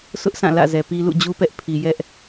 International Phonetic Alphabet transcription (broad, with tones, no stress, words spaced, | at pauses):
sʊ˦ʔsã˦˨ lä̰˦˨zɛ˨pi˦ lṵ˦˨d͡ʑu˦pɛ˦ʔpʰi˨ jɛ˦ʔ